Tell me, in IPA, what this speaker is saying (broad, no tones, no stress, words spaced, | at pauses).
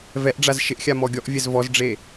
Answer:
vɛʔɖ͡ʐaz ʃɪʔxʲa mɔɡʲɔʔvʲɛz vɔzɖ͡ʐe